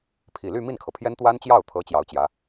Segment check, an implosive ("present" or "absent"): absent